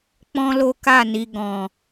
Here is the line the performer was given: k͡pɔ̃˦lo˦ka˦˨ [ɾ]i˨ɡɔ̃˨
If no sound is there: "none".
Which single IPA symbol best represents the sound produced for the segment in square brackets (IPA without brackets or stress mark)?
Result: n